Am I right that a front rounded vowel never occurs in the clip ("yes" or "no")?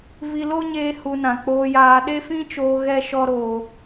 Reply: yes